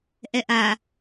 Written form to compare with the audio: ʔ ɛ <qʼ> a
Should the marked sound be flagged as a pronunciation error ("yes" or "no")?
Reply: yes